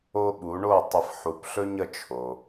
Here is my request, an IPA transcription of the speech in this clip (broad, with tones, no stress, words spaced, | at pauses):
o˥ɓu˩˥ ɳo˥˩tˤə˧fħu˩˥p ɬɵ˥ɲə˩˥t͡ʃʰo˩